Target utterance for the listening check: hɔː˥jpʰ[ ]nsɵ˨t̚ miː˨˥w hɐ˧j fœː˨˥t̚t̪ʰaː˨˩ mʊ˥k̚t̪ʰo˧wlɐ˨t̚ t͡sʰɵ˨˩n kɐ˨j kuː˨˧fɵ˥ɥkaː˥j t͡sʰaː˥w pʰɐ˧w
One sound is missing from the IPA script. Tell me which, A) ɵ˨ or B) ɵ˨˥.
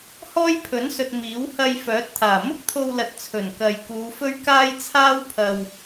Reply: B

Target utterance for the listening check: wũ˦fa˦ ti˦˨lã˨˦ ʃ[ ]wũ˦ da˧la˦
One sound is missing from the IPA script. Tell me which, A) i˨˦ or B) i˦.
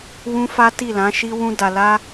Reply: B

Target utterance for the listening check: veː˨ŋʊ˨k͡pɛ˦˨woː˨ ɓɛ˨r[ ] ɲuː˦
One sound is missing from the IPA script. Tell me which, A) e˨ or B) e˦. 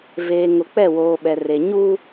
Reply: A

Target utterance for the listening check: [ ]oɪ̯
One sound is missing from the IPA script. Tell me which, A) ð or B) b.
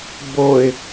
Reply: B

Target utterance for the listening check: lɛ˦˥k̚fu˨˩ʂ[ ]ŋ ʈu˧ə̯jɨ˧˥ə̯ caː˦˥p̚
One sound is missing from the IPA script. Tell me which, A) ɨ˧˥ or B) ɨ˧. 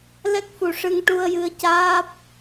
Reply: B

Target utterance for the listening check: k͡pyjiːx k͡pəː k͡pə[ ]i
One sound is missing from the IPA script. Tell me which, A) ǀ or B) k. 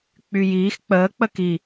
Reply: B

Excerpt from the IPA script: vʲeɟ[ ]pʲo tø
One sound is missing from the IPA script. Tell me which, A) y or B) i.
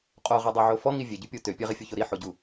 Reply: A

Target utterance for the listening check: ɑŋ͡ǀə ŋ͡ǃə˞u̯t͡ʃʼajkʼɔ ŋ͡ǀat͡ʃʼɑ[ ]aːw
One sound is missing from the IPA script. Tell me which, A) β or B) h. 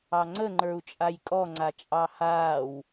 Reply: B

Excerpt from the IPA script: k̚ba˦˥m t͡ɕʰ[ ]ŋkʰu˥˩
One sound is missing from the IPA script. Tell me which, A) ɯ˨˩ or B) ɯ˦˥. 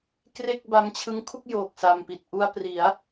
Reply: B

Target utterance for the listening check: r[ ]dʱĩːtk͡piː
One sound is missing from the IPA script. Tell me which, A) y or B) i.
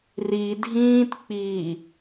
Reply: B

